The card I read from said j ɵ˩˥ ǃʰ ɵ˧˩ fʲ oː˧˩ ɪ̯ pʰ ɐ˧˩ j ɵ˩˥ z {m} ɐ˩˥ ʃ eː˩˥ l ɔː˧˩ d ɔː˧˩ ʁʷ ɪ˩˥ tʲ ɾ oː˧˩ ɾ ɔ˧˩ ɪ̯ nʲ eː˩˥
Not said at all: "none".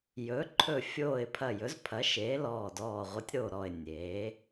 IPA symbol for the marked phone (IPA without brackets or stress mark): pʰ